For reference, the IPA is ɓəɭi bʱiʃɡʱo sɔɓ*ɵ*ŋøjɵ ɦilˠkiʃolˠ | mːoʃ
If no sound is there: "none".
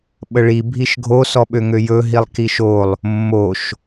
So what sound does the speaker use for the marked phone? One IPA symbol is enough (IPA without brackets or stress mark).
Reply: ø